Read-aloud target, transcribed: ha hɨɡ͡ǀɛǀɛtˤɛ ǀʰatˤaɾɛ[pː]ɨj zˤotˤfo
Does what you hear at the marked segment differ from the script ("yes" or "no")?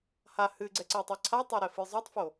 yes